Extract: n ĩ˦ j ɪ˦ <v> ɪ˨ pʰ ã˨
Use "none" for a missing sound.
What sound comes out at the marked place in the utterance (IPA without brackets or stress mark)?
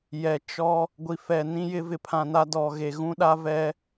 v